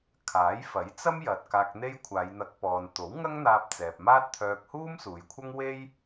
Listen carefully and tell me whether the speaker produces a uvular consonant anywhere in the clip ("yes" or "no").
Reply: no